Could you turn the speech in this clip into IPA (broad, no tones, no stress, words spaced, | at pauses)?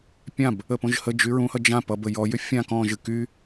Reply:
pʲãb | əpõʒhəd͡ʒy ɹũhʌ d͡ʒã pʌbə jɔjʏ fʲã kɔ̃ʒɨ ky